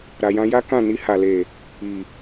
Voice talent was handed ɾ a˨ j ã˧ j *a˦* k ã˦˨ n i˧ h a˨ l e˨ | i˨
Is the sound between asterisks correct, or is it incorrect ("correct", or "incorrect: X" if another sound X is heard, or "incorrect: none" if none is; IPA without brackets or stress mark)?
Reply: correct